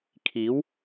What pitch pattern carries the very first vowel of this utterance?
rising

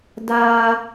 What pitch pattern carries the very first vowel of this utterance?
high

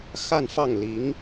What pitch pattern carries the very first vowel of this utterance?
falling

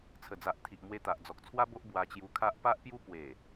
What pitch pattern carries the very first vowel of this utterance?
low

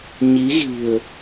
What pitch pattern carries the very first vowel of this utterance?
rising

